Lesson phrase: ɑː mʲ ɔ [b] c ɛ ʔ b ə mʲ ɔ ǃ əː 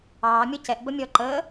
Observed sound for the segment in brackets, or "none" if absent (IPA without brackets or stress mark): none